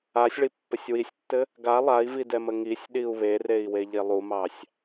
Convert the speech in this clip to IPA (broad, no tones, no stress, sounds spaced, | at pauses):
a sʲ ɭ i pː ə sʲ w i sʲ tː ɘ | ɡ a lˠ a i̯ v i d ɛ m ə ŋ i sʲ ɗ i u̯ β e r e i̯ w e ʎ e lˠ u m ɑ sʲ